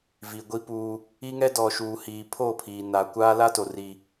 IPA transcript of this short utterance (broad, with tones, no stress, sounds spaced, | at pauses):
v i˨ ɡʷ i˦ p uː˦ | i˦ ŋ ɛ˦ d ɔ˨ ʃ uː˨ h iː˨ pʰ oː˦˨ pʰ iː˨ n a˨ kʷ aː˦ l a˦ t o˨ r i˦